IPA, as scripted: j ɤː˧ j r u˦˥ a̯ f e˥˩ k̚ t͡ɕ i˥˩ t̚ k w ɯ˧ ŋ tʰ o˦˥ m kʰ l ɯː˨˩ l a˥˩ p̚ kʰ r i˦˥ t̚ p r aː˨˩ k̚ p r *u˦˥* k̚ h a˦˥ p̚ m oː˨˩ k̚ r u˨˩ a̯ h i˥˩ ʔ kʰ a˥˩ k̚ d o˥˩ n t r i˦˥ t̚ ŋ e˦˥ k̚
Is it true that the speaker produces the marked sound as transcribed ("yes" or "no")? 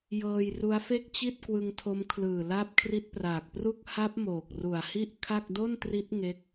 no